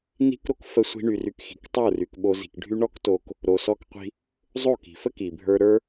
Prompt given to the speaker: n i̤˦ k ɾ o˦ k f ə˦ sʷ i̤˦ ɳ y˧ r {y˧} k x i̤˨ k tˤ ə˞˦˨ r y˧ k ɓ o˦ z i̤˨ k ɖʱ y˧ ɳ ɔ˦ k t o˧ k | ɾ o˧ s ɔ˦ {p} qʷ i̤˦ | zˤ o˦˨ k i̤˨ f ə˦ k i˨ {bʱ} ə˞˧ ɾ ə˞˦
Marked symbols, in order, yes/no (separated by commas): yes, no, yes